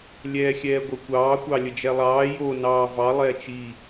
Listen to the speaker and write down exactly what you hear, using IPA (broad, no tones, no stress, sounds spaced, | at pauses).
lʲ ɛː xʲ ɛː ɡʷ ə kʷ ɑː kʷ ɑ lʲ ə d͡ʒ ɛ lˠ ɑː j o n ɑː v ɑ lˠ ɛː t͡ʃ i